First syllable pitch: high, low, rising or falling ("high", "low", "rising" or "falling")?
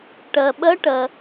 low